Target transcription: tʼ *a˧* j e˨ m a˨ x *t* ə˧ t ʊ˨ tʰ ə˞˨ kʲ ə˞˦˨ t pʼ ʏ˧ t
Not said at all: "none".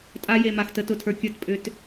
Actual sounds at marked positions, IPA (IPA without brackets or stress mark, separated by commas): a˦, t